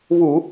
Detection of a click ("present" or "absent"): absent